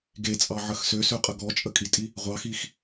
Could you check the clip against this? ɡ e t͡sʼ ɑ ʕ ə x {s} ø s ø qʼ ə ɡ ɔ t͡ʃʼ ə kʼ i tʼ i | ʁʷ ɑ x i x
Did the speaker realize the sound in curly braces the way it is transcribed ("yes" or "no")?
yes